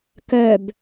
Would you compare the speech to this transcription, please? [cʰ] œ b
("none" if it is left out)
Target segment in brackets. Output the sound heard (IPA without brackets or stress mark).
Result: k